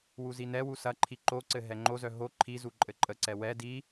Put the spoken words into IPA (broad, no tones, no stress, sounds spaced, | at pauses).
w u z i n ɛ w u s ɐ ǃʰ i ǃ o ǀ ɘ ɦ ɛ ŋ͡ǃ o z œ ɦ o ǃʰ i z u ǃʼ ɘ ǃʼ ə ǀ ɛ w ɛ d i